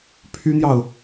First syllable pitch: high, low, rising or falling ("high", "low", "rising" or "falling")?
high